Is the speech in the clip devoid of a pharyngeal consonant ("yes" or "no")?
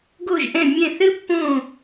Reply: yes